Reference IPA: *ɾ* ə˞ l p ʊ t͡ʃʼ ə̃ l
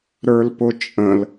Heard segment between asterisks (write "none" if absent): ɾ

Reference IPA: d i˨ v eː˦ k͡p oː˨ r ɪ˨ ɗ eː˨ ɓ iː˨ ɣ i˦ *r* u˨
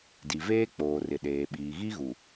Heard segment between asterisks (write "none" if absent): ɣ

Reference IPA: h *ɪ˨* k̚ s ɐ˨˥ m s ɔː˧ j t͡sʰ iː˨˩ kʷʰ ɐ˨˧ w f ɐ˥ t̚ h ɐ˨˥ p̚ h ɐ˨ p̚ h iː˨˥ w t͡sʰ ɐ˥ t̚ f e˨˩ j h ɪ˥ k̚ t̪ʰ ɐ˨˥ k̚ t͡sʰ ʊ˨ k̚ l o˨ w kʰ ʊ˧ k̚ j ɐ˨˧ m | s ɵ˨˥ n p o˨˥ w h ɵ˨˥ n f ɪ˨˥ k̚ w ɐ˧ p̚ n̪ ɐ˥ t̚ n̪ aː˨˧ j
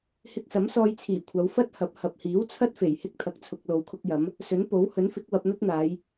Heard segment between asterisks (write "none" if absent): ɪ˧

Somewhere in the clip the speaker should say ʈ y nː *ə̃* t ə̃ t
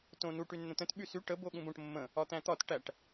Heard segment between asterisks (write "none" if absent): ə̃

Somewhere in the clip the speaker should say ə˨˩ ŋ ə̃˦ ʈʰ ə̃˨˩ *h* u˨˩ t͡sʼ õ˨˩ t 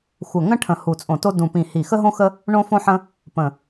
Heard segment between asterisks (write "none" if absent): h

